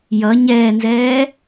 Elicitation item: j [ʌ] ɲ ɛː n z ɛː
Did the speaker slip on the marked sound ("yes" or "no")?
no